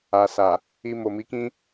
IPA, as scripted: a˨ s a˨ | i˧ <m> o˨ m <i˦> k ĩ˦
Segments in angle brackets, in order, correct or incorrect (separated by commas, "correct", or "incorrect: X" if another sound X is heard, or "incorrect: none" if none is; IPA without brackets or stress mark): correct, incorrect: i˨˦